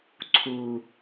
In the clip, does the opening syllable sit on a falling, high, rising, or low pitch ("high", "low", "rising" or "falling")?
low